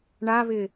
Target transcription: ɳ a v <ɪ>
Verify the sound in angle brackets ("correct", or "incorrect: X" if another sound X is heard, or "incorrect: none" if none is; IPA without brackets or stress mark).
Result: correct